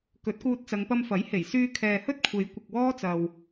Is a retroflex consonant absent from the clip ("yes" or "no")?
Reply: yes